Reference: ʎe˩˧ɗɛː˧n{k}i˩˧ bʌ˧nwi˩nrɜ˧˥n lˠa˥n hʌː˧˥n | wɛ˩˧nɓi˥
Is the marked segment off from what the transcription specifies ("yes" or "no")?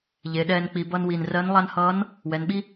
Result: yes